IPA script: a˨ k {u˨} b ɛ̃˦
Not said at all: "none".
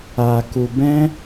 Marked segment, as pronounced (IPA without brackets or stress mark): u˨